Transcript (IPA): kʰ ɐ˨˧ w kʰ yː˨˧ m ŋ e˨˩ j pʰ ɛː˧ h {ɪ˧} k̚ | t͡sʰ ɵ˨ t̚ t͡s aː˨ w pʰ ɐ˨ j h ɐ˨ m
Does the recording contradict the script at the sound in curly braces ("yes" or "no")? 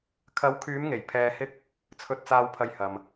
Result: yes